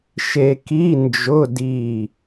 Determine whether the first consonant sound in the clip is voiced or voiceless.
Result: voiceless